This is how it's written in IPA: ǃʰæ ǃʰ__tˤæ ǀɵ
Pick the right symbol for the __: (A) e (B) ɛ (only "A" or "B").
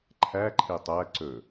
A